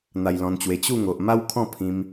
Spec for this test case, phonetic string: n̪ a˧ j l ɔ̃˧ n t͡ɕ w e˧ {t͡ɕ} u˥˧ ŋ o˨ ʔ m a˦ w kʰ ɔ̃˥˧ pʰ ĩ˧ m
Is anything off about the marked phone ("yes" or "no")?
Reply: no